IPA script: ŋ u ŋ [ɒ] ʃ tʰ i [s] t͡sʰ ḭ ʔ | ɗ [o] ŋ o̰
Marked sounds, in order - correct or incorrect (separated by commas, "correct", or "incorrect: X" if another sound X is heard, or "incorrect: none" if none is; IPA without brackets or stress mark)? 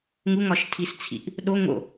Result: correct, correct, correct